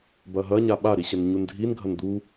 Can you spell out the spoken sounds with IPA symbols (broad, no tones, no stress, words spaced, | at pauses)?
bɐɦɐ ɲaɓa ɾiɕɐnɲundʱin ɡʱɐnd̪u